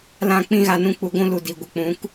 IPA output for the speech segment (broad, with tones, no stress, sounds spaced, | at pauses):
l ã˦ k͡p ĩ˦ ɣ a˧ n ũ˧ k͡p u˧ ɡʷ ũ˦ l u˨ d i˨ ɡʷ ə˨ k͡p ũ˨˦ k